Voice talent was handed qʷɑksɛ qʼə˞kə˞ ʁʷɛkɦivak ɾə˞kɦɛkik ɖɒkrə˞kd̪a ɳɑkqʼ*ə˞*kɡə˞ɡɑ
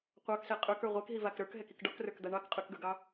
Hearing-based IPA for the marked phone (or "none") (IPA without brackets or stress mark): ə˞